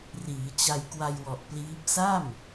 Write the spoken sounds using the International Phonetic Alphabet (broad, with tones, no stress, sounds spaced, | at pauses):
r iː˩˦ t͡ɕ a˧ j k w a˧ j w ɔ˨˩ ʔ p l iː˦˥ p̚ s a˥˩ m